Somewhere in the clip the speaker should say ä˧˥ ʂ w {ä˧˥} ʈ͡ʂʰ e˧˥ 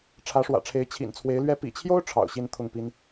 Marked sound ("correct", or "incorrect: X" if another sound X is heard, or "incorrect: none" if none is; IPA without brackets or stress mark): incorrect: ä̰˨˩